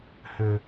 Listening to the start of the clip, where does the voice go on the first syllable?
high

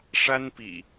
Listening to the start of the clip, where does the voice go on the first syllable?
high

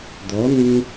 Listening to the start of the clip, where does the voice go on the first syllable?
rising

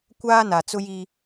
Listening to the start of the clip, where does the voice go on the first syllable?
high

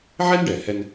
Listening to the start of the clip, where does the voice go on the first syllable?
high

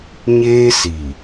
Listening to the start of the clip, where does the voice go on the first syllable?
high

